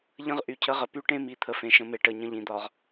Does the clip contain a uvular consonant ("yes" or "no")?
yes